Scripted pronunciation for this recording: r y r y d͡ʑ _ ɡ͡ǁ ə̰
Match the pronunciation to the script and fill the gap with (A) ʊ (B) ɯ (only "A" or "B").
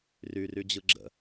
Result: B